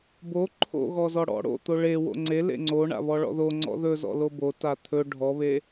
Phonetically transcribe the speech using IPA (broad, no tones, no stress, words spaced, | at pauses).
bo ǃʰo̰ɣɔzɔ ɽɔ̰ ɽo̰t̪o ɭe wo̰ŋ͡ǀe lḛŋ͡ǀo ɳa̰βɔɭɔ̰ðo ŋ͡ǀɔ̰ðɵzɔ̰ lobo tat̪ʰɵ ɖʱɔβe